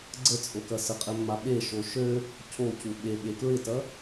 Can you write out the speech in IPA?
ɡ͡ǀ ə t͡sʼ o k ɐ s ə qʼ ɛ mː a ɓ e ʃ o ʃ ø | cʰ o c u ɓ e ɓ e k ɹ ɪ t ɐ

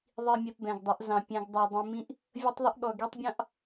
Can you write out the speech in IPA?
ðˤ i˨ mʲ ɛ˨ p b ɛ̃˨ ɡ dˤ ʌ˨˦ ʔ z ɑ̃˨ pʲ ɛ̃˨ ɡ dˤ ɑ˨ dˤ ĩ˨ m ĩ˦ ʔ | vʲ ʌ˦ tˤ ðˤ ə˦ ʔ ɠ ɔ˨ ɡ i˦ tˤ bʲ ɑ̃˦ ʔ

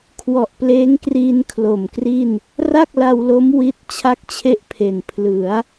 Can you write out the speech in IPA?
kʰ w ɔ˨˩ ʔ p l eː˦˥ ŋ k r iː˧ n kʰ l o˨˩ m k r i˥˩ n | r a˥˩ k̚ l a˧ w l o˦˥ m w i˦˥ t̚ t͡ɕʰ a˦˥ k̚ t͡ɕʰ e˦˥ ʔ pʰ e˨˩ n pʰ l ɯ˩˦ a̯

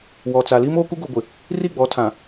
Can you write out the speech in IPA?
w ɔ˨ t͡s a˨ l iː˦ m oː˦ k u˦ ɡ o˨ ɡʷ ɪ˨ | r i˦˨ ɡ͡b ɔ˨˦ tʰ ã˨

